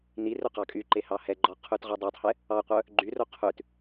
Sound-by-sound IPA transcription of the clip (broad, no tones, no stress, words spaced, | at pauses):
ni rɵqɑkʼyǃe hɑhɛɡ͡ǃɔ qʰʉtʁɔdˤœtˤhɛ | ɑqʷœ | ɡ͡ǃyro qʰʉt